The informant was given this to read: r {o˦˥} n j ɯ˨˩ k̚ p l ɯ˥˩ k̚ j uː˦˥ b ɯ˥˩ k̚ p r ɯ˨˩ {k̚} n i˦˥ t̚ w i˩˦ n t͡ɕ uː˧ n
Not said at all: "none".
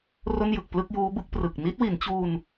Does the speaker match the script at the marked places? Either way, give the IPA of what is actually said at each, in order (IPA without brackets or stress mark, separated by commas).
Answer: o˥˩, k̚